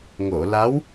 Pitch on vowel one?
low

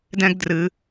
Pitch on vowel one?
high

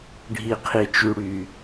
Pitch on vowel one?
low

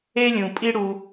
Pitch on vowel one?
high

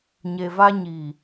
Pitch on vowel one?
low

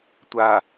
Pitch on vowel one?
low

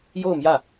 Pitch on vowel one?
falling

